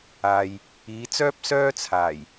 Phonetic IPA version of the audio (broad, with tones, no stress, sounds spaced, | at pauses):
aː˨ j | iː˨˧ t͡s œː˥ p̚ s œː˥ t͡sʰ aː˨˩ j